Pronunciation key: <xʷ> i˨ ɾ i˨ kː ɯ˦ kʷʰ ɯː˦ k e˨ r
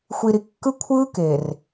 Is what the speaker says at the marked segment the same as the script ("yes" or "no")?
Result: yes